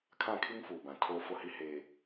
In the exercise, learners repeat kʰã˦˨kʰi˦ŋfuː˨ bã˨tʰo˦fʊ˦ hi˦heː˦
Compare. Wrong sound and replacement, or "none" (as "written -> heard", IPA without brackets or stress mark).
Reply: none